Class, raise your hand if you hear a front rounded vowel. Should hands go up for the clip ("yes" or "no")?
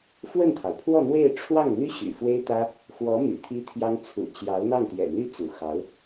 yes